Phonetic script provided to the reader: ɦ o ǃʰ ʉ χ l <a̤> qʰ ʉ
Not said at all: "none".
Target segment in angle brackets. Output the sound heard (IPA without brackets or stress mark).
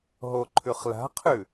a̤